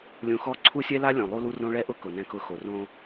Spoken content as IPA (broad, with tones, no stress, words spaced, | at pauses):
lʲũ˨xɔ˦˨ ǀʰu˦sʲɛ˦la˦ lʲõ˨lˠu˦lu˦rõ˦ ɭɛ˦ʔʊ˦ kʊ˨nɛ̃˦kʊ˦ xo˨ rõ˦